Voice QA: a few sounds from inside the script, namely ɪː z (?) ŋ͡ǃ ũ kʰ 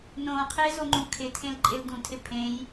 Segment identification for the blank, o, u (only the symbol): o